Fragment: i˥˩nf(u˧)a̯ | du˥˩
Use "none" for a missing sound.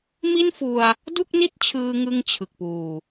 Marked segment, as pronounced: u˧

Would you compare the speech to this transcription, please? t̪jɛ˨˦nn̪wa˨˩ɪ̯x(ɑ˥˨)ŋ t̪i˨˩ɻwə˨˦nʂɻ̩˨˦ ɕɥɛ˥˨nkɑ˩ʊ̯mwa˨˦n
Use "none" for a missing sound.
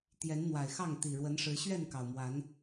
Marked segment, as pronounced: ɑ˥˨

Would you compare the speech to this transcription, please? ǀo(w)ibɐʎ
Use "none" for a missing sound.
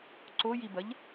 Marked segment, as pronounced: j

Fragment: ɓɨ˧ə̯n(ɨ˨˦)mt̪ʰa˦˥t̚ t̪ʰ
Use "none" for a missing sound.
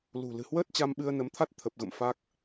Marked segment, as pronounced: ə˨˦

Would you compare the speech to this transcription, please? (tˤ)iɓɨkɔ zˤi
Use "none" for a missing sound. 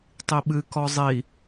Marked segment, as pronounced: tˤ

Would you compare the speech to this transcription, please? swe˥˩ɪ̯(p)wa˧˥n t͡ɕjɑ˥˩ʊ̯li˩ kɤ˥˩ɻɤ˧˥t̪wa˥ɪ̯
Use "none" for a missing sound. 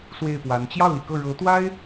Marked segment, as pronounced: p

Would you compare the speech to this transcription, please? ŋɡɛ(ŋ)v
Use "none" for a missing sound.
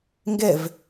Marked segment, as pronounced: none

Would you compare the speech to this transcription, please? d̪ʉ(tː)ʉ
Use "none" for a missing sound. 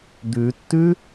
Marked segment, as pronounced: tː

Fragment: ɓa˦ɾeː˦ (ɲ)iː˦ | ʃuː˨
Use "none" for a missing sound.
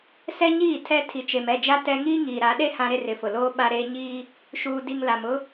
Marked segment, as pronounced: ɲ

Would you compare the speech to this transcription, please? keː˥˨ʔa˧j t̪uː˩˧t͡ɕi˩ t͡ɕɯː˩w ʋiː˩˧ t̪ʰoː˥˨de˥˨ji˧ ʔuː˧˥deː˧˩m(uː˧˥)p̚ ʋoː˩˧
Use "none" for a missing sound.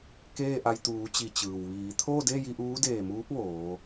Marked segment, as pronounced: uː˧˥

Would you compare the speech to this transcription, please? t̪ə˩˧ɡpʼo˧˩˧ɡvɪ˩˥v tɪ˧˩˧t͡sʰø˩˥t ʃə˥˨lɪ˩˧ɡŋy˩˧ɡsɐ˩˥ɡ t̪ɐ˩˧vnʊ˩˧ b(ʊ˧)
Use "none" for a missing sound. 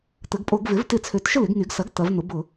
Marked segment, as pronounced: ʊ˧˩˧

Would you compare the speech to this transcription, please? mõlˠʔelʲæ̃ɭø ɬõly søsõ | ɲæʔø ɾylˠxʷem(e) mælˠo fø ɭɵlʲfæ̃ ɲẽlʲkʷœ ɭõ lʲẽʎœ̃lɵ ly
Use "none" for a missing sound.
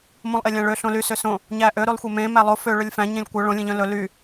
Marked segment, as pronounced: ẽ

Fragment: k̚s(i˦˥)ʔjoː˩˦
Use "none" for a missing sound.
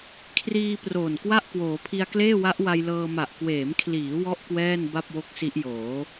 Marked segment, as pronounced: i˦˥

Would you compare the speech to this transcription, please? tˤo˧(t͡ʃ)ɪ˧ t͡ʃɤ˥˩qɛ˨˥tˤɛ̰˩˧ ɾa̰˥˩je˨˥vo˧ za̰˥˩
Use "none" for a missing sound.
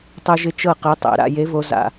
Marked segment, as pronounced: ʒ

